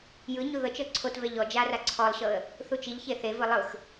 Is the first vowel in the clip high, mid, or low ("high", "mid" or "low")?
high